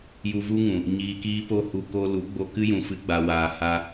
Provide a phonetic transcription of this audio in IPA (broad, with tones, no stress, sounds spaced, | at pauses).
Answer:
j u˧ v u˦ ŋ ũ˨ | ɲ iː˧ k iː˦ p o˧ h u˨ k o˧ l u˨˦ ɡ͡b o˧ k ɨ˦ j ũ˨ f ɨ˧ ɡ͡b a˨ w aː˨ h a˧